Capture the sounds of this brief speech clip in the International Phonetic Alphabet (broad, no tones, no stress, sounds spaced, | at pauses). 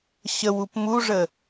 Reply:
ɕ ə w u p m u ʐ ə